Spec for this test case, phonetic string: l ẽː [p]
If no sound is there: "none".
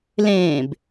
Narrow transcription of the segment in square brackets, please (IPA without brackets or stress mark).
b